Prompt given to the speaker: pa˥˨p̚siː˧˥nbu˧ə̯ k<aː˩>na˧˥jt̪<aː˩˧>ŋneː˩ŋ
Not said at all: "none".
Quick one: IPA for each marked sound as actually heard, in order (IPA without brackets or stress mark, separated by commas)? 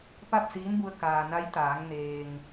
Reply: aː˩, aː˩˧